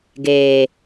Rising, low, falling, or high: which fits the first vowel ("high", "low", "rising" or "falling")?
low